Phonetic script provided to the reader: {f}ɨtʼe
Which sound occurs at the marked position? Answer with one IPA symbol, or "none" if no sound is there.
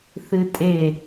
θ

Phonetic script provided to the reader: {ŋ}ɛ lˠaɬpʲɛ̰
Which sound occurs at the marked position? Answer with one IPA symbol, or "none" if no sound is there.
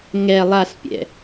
ŋ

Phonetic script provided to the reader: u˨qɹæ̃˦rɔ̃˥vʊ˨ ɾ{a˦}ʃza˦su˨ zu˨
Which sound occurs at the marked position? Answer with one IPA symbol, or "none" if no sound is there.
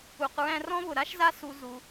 a˥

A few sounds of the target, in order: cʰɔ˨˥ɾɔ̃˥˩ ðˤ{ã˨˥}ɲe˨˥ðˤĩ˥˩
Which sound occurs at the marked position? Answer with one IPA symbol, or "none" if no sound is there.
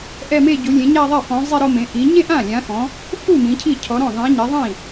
ã˨˥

